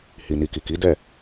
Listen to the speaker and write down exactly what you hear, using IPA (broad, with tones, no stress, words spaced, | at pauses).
hi˨ni˨ ki˨ki˨˦ dɛ˦˨